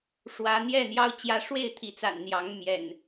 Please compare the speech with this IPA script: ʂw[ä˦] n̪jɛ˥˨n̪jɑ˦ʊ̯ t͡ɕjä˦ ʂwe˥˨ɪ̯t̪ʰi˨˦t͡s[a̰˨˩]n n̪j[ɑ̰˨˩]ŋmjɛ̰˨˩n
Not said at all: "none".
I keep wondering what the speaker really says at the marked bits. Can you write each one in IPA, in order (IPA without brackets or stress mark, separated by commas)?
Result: ä˨˦, a̰˨˩, ɑ˨˦